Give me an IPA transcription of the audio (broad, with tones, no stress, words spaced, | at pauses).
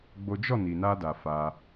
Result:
ɡ͡bo˦ d͡ʒɔ˦˨ni˨na˧da˨ fa˧